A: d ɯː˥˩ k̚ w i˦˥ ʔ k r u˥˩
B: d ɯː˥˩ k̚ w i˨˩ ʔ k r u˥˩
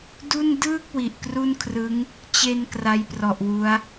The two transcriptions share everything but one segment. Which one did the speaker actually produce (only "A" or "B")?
B